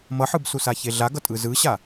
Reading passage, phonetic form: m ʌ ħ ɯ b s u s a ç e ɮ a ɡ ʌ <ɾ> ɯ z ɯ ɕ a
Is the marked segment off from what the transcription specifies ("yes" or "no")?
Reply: yes